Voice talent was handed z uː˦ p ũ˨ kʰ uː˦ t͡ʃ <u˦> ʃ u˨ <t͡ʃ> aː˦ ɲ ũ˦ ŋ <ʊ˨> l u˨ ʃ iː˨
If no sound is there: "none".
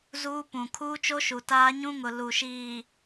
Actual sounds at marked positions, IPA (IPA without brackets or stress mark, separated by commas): o˦, t, ʊ˨